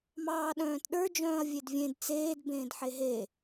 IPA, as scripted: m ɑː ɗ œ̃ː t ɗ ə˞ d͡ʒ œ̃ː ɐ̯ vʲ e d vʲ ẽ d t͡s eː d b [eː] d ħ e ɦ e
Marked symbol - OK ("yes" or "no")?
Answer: no